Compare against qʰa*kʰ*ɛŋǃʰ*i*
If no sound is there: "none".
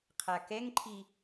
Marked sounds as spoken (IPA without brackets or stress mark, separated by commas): k, i